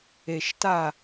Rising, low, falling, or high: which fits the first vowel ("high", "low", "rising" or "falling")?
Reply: low